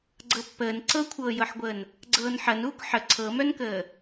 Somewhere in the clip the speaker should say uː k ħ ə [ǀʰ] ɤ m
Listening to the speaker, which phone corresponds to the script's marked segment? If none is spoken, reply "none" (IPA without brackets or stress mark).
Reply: ǀʰ